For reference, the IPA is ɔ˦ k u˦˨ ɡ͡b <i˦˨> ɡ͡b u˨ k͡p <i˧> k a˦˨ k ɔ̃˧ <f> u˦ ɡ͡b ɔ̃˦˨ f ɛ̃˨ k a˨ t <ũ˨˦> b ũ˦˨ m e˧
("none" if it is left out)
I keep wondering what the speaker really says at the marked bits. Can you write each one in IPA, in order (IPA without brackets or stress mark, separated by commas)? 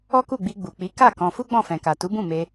i˧, i˨˦, f, u˨˦